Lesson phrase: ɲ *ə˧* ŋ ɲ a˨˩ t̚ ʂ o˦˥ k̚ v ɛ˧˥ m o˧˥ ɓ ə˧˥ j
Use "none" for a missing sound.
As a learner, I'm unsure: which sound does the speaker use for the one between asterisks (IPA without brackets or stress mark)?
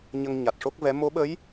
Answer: ə˧